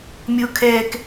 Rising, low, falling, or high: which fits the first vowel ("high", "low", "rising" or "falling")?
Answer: high